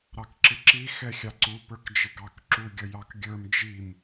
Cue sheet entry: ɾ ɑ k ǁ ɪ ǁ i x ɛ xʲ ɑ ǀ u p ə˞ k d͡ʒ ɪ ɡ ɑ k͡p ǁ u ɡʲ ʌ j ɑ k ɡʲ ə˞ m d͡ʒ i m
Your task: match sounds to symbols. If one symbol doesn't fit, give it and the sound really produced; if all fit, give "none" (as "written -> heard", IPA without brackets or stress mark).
k͡p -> k